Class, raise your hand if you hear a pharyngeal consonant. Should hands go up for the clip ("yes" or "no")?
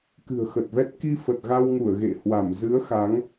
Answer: no